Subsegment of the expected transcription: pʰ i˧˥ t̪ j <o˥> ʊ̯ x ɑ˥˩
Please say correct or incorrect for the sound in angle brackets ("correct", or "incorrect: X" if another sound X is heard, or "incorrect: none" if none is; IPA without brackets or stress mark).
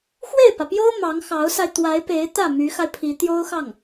correct